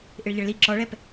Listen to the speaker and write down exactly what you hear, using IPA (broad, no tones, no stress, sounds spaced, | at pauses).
ʔ ɪ ɭ ʎ ə ɭ l i ǁ ɔ ɭ ɛ p